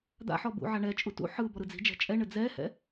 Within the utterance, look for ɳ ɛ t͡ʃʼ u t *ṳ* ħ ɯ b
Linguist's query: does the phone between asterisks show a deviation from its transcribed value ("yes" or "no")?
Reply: yes